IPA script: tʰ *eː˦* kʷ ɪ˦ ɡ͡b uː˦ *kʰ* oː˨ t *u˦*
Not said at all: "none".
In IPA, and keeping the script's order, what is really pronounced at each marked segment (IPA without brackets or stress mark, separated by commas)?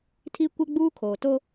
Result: iː˦, kʰ, o˦